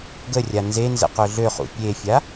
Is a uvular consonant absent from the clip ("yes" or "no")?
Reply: no